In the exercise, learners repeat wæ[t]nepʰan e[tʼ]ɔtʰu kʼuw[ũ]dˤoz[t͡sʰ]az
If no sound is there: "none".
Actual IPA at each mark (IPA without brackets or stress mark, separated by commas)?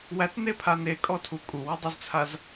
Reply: t, kʼ, u, t͡sʰ